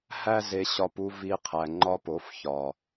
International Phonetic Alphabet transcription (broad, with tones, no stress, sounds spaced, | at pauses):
h æ˦ z e˧ ɕ ɒ˧ p u˧ v i˧ qʰ æ˨ ŋ͡ǃ ɒ˧ p o˨˦ f ç ɒ˨